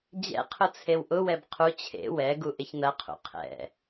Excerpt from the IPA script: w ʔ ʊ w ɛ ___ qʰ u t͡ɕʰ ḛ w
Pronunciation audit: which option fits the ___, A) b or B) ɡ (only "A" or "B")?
A